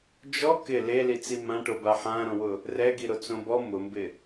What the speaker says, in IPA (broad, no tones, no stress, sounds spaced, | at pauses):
d͡ʒ ɔ k ɪ l e l i t͡s i m ã ʈ o b a ħ ã ɾ õ w ʊ | r ɛ ɡ i ɾ o t͡s õ b ɔ m ʊ m b ɪ